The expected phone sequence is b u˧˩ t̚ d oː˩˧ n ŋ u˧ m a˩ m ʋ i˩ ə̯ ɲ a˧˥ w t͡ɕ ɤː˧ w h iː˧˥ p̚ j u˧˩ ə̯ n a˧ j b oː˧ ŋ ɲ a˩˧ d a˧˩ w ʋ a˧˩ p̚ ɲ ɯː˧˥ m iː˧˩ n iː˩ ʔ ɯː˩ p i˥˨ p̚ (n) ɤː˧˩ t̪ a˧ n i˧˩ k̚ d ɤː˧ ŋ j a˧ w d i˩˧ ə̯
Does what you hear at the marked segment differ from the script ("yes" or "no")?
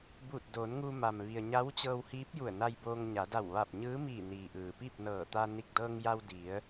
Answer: no